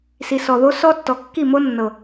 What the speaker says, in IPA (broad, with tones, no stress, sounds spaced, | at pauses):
s i˨ s ɔ˨ ð o˦ s ɔ˦ tː ɔ˨ kː i˦˨ m o˦ nː ɤ˨